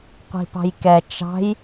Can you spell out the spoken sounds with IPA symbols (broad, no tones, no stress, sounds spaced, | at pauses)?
qʷ i̤ p ɑ̤ j k ɛ t͡ʃ ɑ̤ j